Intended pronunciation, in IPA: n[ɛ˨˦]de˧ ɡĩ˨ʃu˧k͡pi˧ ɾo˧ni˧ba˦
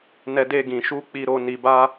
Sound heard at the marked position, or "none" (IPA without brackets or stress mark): ɛ˧